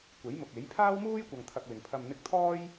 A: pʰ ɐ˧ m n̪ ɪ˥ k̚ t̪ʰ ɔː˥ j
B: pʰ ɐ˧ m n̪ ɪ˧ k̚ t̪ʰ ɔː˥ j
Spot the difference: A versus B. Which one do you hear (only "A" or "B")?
B